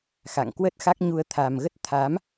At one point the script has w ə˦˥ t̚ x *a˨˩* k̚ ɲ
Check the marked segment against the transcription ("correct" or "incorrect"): incorrect